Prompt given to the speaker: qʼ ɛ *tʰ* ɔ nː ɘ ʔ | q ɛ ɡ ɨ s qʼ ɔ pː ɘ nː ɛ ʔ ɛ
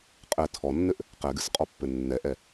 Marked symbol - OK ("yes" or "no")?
yes